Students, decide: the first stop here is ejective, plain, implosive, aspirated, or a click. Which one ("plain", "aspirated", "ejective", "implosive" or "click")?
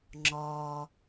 click